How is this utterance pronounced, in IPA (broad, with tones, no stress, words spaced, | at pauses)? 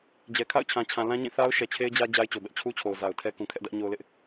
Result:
d͡ʑɛ˨ kʰa̰˦˨ʊ̯t͡ɕʰã˨t͡ɕʰã˨ lã˦ɲĩ˦˨θa˦ʊ̯ ʃɛ˨t͡ɕʰe˦ɪ̯d͡ʑä˦ d͡ʑa˦ɪ̯t͡ɕo˨bɛ˦ʔ t͡ɕʰu˦t͡ɕʰo˨ʊ̯ za˨ʊ̯tʰɛ˦kũ˨ kʰɛ˦ʔdä˦ʔɲo˦ʊ̯lɪ˦ʔ